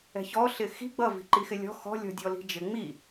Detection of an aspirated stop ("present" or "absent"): absent